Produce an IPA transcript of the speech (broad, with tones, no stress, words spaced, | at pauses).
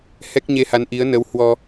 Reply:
hɛ˦˥k̚ɲe˧ha˨˦n ʔi˨˦ə̯ nə˨˦whwɔ˧